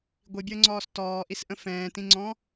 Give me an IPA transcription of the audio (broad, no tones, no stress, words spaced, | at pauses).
ɡʷibʲəːŋ͡ǀɔːs tɔːʔisʔə̃ fɛ̃ːtĩŋ͡ǀɔ̃